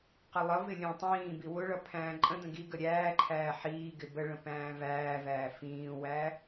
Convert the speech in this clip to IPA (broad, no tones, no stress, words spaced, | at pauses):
qəlˠʌvɪ lʲə̃ːtˤĩːbi wʊɭʌ pʰæ̃ːǃʼə̃də̃ ɡiɡə ɾʲæːǃʰæː ħiːɡɪ bəɭə̃ pæ̃ːvæːvæː fĩːwæ